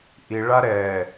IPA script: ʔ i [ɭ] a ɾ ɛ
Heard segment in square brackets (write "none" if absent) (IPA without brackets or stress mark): ɭ